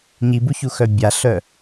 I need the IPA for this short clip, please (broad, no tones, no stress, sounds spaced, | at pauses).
ɲ i b u ç u x œ bʲ a ɬ œ